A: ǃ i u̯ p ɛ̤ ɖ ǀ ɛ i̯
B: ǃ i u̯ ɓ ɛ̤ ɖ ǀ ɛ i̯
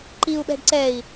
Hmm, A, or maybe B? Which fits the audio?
B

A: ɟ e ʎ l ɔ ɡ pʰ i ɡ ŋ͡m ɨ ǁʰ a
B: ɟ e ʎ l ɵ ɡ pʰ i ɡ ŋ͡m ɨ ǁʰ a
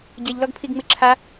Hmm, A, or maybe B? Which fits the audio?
A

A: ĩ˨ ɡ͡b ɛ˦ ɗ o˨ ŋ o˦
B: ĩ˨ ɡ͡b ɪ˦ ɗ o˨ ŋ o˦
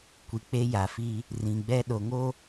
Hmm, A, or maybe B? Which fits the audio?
A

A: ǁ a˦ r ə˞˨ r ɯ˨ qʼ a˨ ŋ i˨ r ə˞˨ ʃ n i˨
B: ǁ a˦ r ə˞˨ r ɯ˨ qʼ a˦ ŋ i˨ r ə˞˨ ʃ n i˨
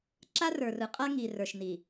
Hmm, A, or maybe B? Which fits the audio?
B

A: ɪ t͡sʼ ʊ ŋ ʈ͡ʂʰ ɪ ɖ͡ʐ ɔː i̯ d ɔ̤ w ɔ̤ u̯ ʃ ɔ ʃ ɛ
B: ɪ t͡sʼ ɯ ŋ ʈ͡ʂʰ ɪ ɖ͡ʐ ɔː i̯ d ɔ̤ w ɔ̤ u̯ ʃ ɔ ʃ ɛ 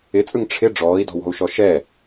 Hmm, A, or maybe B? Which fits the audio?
B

